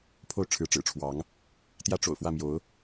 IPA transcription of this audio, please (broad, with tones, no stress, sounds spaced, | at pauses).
pʰ o˥˨ ʊ̯ ʈ͡ʂʰ ɻ̩˨˦ ʈ͡ʂ ɻ̩˨˩ ʈ͡ʂʰ w ɑ˨˦ ŋ | t̪ j ä˦ ʈ͡ʂ o̰˨˩ ʊ̯ f w ä˥˨ m j o˨˦ ʊ̯